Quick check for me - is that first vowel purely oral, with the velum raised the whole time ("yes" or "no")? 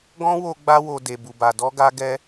no